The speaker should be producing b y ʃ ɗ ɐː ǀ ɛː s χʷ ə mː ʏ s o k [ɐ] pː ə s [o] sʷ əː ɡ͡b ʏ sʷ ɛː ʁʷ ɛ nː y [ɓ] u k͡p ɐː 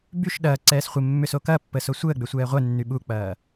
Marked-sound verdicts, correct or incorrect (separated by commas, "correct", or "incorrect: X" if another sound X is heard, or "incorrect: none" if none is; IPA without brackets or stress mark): correct, correct, correct